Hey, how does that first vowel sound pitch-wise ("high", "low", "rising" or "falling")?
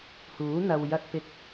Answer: rising